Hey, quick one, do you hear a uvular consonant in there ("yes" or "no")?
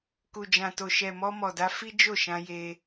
no